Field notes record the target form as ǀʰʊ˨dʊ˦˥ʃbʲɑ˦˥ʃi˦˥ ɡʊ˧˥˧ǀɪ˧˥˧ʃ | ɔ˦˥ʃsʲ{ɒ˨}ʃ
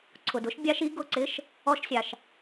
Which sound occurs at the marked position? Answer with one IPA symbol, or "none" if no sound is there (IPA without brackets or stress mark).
ɑ˨